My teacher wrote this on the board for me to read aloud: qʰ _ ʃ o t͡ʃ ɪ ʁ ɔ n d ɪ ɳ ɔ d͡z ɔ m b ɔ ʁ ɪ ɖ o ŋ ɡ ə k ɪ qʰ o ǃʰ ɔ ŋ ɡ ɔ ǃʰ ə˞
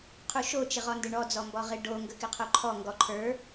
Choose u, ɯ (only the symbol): u